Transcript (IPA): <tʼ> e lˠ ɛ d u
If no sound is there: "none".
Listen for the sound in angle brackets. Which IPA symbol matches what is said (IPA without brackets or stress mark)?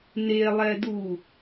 n